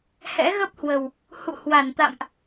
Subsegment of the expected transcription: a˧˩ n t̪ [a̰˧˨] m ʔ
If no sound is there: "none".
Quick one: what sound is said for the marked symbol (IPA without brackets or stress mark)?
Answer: a̰˧˨